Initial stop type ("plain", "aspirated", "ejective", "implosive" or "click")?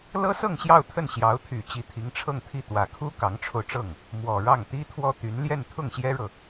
aspirated